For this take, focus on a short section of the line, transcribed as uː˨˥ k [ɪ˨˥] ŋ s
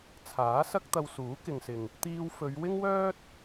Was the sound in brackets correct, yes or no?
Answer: no